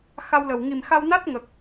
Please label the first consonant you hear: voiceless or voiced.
voiceless